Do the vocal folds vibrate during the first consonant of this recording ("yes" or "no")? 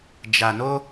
yes